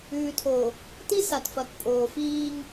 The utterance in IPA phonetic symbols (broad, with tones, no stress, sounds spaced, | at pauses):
ʉː˨ tʰ o˨ | t i˦ s a˨ t f ɐ˨ k pʼ oː˨ f iː˦ ŋ